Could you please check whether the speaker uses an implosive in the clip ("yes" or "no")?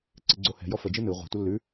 no